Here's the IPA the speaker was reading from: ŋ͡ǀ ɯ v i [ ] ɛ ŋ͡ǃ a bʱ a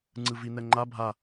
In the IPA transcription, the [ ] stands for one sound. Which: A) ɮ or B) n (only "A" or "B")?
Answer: B